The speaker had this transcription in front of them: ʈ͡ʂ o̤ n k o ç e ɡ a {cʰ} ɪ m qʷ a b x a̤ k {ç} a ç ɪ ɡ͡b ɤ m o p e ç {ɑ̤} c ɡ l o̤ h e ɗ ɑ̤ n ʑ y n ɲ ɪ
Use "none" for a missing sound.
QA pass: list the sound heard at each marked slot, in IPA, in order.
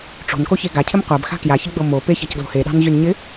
cʰ, j, a̤

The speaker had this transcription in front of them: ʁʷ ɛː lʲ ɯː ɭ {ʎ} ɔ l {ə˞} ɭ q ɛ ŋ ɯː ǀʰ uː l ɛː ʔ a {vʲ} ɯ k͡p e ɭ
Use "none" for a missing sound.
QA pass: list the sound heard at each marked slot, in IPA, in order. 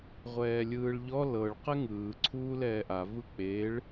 ʎ, ɤ, v

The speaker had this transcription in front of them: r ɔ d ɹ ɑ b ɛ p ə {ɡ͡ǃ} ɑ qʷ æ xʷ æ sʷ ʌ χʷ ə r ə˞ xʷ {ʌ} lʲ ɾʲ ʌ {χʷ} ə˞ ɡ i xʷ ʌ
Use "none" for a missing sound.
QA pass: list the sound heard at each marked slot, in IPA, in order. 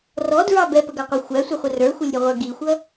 ɡ, ʌ, ʁʷ

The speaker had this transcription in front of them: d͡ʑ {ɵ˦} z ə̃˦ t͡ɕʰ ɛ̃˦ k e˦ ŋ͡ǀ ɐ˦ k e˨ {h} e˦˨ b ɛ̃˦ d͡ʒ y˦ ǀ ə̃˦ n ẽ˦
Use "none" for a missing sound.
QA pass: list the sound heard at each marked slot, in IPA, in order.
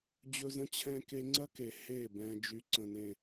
ɵ˦, h

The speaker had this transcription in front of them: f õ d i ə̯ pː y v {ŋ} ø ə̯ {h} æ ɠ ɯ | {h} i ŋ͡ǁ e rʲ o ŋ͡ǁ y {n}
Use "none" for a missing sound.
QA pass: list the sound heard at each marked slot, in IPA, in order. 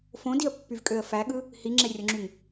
kʼ, f, h, ŋ

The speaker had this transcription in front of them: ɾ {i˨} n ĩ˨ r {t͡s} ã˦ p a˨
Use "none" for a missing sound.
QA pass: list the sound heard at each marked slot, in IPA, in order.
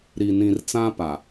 i˨, t͡s

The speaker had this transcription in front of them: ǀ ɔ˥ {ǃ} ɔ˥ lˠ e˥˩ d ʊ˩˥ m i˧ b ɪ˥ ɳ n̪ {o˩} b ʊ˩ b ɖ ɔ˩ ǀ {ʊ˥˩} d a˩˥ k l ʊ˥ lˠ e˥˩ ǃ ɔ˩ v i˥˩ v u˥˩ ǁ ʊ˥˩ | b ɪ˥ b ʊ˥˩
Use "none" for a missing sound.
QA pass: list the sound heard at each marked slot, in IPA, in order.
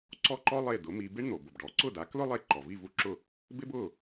ǃ, o˩, ʊ˥˩

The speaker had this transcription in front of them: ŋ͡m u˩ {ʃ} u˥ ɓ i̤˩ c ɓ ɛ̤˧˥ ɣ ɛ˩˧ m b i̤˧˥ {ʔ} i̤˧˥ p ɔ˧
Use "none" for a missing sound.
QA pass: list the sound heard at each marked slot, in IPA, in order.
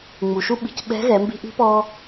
ʃ, ʔ

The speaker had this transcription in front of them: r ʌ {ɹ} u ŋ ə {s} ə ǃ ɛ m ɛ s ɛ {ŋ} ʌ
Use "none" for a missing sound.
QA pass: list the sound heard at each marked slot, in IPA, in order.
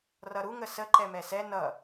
ɾ, s, n

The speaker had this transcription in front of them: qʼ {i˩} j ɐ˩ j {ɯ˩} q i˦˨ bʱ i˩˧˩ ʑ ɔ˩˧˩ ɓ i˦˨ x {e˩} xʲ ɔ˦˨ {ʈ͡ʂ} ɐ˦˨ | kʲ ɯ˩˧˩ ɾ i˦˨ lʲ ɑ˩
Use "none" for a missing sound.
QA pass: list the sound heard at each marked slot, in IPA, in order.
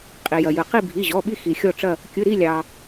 i˩, ɯ˩, i˩, ʈ͡ʂ

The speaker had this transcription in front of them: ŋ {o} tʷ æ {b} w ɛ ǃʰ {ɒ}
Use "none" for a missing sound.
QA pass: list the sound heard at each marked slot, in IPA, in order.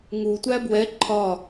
u, b, ɒ

